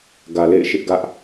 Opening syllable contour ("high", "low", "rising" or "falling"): low